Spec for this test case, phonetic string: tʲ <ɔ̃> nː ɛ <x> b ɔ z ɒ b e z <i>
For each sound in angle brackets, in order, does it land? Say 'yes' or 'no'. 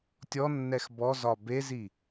no, yes, yes

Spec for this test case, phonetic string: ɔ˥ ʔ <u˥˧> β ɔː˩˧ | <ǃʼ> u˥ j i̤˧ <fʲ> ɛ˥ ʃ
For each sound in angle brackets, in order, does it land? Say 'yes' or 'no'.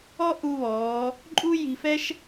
no, yes, no

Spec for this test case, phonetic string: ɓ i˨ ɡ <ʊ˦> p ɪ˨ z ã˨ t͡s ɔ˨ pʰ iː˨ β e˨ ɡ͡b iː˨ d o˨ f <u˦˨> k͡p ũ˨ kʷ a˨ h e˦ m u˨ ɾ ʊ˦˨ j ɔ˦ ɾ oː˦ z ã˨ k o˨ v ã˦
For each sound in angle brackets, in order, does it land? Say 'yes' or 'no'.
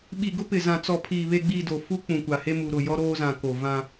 yes, no

